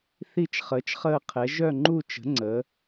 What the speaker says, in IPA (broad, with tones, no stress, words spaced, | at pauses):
θi˥˧t͡ʃχəː˨˥t͡ʃχəː˥˧qʰɛ˨˥ ʒœ˥˧ŋ͡ǃu˥˧t͡ʃə̤˨˥ ŋ͡ǀə˨˥